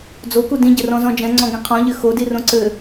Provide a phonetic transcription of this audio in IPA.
d͡zoku dĩɟɘrɔ̃zɔ̃ d͡ʒɛ̃ŋ͡ǀɔ̃ɡĩ qʰɔ̃ʎɘ xodirõ ǀɘ

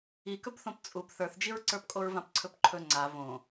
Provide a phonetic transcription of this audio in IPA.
ikɵbθõp t͡sʼub θə˞θd͡ʒiɹǀə˞pkʼoɹ vãpǀʰɵpǃʰɵ ŋ͡ǀa võ

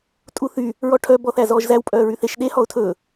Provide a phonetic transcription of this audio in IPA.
tʼuθy | ɹɔʈʰœ bɔθæzɔːʒzæw pʼœːɹyθeʃ ɗe hɔʊ̯tʰɵː

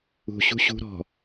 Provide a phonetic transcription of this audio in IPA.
ṳ ɕṳɕṳ ɾɔ̤

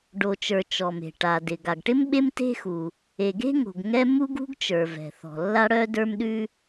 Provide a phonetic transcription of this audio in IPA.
ɖo˩t͡ʃə˞˩ t͡ʃɔ˩me̤˩ ʈa˩dɪ˩ ɡa˩ɡʈɪ˥m ɓe˥mte̤˥xu˩ | e˩ɡe̤˥ŋo̤˩ɡ ŋɛ˥ mu˥ɡṳ˥ɡt͡ʃə˞˩vɛ̤˩ θɔ̤˩lːa˥ɽœ˥ də˞˥mɗʉ˥

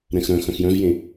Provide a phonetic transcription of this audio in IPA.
ɾɛ̃xɾœ̃ xœ̃xjœ̃vjẽ

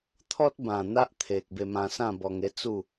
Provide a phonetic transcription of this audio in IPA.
t̪ʰɔ˦t̚bã˨˩ n̪a˦ʔt̪ʰe˨k̚ be˧mã˧sã˥˧ bɔ˧ŋe˦ t͡su˥˧

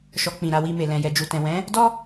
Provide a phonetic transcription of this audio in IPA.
ʃɔ˧ k͡pĩ˨ɾa˧ wi˧me˨ lɛ̃˨jɛ˨d͡ʒu˨tɛ̃˨ wɛ̃˨˦ | dɔ˦

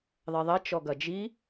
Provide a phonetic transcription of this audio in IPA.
ðˤɛðˤɛ t͡ʃɔɡɐd͡ʒi

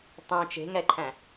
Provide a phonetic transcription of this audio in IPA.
tˤœ̃ t͡ʃe̤ŋɛǃʰæ̃

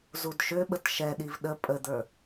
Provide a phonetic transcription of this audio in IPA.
zudʃøɓət ʃɛɗiv ɗə pʼəd̪ə˞

